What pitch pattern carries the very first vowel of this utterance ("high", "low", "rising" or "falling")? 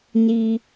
high